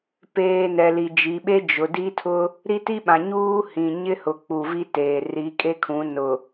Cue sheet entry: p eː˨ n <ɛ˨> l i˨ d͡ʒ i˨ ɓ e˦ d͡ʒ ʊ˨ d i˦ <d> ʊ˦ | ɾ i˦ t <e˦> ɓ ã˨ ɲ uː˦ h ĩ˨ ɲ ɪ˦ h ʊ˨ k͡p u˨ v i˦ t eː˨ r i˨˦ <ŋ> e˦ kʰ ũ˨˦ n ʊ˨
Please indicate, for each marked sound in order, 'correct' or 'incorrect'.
correct, incorrect, incorrect, incorrect

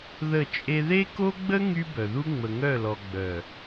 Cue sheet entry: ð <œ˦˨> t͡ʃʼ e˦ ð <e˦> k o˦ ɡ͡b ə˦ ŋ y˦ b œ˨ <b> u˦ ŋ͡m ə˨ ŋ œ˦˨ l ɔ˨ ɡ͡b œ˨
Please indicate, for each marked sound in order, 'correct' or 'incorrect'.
incorrect, correct, incorrect

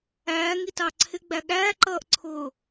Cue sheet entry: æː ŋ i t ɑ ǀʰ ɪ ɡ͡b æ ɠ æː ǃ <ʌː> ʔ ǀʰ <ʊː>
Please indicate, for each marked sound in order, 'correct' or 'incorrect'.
correct, correct

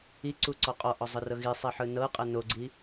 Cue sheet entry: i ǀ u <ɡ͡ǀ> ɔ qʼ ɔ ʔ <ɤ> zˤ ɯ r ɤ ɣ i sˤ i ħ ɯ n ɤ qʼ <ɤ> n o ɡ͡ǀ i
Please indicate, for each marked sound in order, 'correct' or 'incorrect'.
incorrect, incorrect, correct

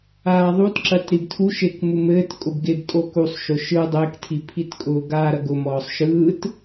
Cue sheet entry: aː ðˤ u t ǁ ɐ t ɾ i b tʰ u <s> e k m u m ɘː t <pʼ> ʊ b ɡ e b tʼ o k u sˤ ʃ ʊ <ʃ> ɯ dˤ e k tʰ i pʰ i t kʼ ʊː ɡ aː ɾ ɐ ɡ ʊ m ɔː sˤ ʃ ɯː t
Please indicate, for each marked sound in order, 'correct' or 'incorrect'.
incorrect, incorrect, correct

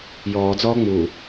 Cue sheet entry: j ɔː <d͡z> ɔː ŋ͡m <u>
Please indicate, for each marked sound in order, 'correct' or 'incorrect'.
correct, correct

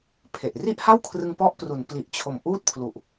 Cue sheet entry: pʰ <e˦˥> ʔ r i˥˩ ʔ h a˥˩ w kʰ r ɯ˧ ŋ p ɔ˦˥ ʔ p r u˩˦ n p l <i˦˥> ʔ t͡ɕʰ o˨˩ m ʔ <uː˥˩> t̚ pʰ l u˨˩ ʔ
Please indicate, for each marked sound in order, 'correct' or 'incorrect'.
incorrect, incorrect, correct

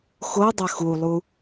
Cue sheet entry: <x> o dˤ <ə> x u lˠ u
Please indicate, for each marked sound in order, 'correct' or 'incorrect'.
correct, correct

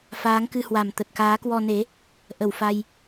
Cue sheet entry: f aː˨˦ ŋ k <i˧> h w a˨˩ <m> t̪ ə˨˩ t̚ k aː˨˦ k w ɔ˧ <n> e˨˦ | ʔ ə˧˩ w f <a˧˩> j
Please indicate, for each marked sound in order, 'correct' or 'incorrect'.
incorrect, correct, correct, incorrect

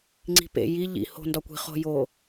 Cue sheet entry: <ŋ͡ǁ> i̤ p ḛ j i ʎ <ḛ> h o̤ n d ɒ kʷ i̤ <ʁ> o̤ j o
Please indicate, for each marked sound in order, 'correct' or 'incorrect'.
incorrect, incorrect, incorrect

